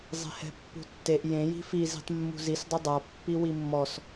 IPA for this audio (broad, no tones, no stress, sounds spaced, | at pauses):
zˤ e̤ h ɛ̤ pː ṳ tː e ʔ j ẽ j i̤ f i z i̤ tˤ mː ṳ z i s dˤ ʊ dˤ a pː i w i mː ɔ s